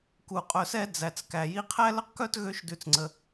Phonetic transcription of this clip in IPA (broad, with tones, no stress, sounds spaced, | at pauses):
k u˨ qʼ œ˨ s ɛ˥ d͡z æ˩ t͡s k æ˩ j i˦ qʰ æ˥ l ə˥ q k œ˥ t ɣ ø˦ ʃ d ʉ˨ t͡s ŋ͡ǀ ə˩